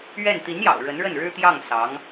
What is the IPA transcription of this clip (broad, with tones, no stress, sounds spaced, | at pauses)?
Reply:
ɥ ɛ˥˩ n t̪ i˧˥ n j ɑ̰˨˩ ʊ̯ ɻ ə˧˥ n ɻ ə˥˩ n ɻ ɻ̩˥ t̪ j ɑ˥˩ ŋ s ɑ˧˥ ŋ